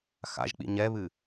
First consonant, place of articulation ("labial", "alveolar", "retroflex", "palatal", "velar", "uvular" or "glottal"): velar